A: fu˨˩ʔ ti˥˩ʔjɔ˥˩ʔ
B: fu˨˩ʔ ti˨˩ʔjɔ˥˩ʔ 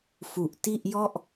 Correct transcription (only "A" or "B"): A